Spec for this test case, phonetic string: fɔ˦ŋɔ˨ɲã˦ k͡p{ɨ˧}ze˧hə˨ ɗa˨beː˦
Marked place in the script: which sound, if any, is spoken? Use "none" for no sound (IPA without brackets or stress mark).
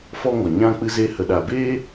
ɨ˧